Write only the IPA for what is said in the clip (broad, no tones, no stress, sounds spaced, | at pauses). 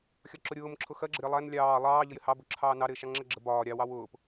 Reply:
xʲ ɒ ǁ ʊ ɾʲ ʊː m ǁʰ ʊ x ɜ ɡ͡ǁ ə ɾʲ ɑ lˠ æ n lʲ ɑː lˠ ɑː ʎ ə j ɪ h ɑ b ʊ ǁʰ ɑː n ɑ ɾ ɪː ʃ ɑ ŋ͡ǁ ɜ ɡ͡ǁ ə b ɒː ɾʲ ɑ w ɑ w ʊː p